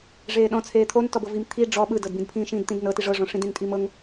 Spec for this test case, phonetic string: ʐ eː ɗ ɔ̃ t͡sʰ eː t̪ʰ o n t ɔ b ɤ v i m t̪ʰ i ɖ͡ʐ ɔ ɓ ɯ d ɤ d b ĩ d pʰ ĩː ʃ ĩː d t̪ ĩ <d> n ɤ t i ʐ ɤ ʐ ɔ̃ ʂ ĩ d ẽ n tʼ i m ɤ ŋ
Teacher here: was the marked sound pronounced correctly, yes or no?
yes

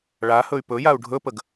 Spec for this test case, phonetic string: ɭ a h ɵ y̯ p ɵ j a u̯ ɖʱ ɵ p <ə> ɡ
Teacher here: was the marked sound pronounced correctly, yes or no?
yes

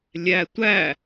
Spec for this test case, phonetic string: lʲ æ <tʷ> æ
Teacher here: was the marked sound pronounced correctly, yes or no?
yes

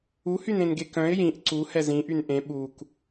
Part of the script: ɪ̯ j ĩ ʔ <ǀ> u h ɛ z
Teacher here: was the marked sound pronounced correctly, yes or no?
yes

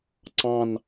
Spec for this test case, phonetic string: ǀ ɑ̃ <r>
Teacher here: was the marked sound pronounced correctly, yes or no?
no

